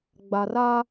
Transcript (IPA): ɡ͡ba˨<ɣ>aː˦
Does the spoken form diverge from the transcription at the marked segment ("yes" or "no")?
yes